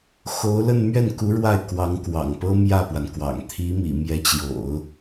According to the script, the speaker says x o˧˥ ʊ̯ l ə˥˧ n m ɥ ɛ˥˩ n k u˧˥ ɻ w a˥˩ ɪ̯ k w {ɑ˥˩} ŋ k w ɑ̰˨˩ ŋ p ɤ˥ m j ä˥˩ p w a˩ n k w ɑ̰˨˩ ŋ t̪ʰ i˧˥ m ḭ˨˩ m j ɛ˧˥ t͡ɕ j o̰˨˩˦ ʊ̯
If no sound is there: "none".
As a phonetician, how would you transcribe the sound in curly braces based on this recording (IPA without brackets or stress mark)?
ɑ˧˥